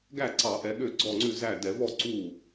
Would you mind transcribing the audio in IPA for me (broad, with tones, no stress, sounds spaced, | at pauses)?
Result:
ɡ æ˥˩ ǀ ɑ˧˩˧ ʔ ɛ˨˦ ɠ ø˥˩ ɡ͡ǀ ɔ˥˩ ŋ͡ǀ ʉ˥˩ z æ˥˩ d ɛ˧˩˧ v ɔ˥˩ ǀ u˥˩